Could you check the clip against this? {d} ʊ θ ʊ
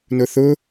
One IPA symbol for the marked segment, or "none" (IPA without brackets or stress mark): n